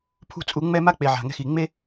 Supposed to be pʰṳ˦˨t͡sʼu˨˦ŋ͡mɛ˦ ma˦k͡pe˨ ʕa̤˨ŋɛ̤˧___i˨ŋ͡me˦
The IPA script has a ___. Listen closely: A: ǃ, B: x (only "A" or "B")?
B